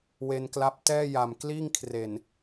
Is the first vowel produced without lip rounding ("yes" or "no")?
yes